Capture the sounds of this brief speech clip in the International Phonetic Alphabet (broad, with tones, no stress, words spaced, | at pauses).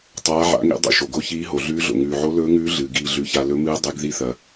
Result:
tˤaː˨˦ʕa̰˨˦ŋḭ˨˦ dˤḭ˩ʃo˩ɡo˨˦çiː˨˦ ɦo˩ɮʉː˨˦ɮo̰˩ ŋʉː˩ʕo˨˦ lɵː˨˦ŋʉː˨˦ ɮɨː˩ ɡiː˩ɮʉ˩ça˩ lɵ˨˦mɨː˨˦ dˤɨ˨˦ɡ ði˨˦θɐ˩